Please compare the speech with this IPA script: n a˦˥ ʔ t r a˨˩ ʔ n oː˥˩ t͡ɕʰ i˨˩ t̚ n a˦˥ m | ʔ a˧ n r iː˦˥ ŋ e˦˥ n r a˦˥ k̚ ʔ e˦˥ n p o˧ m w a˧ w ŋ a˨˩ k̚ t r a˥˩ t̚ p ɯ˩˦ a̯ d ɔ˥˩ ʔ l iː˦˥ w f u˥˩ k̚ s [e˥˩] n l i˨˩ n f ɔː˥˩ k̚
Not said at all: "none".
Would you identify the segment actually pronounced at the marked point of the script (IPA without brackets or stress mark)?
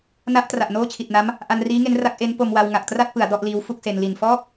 e˧